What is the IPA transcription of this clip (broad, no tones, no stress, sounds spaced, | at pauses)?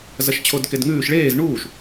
z ɐ ʃ t͡ɕʰ o d k e d ŋ ʉː ʃ ɭ eː z ɳ uː ʃ